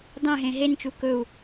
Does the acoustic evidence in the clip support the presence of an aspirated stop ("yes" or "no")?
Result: no